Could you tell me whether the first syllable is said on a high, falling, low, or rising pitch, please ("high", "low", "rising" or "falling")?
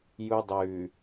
high